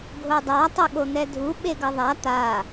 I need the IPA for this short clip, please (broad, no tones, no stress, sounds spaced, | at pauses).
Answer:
ɡʱ o dˤ a tˤ u ɠ o n̪ ɛ dʱ u ɓ e ɡ ʌ ðˤ a t̪ a